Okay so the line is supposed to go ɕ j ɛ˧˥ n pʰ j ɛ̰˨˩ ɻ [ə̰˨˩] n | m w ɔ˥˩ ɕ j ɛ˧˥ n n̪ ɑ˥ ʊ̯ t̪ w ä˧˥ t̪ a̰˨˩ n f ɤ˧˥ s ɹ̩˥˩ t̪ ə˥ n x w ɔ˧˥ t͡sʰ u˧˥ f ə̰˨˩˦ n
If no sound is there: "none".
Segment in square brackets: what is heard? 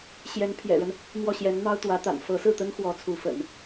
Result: ə˦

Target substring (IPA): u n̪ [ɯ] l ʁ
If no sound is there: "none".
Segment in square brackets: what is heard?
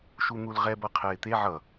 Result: u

